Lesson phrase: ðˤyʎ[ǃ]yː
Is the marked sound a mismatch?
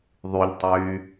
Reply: yes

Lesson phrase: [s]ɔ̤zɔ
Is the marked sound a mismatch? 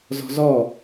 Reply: yes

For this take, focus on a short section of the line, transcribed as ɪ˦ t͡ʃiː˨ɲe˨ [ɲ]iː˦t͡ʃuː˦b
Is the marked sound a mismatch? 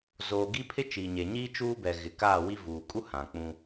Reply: no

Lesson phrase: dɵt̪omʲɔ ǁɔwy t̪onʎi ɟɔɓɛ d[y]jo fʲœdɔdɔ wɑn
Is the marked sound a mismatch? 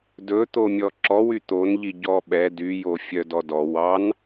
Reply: no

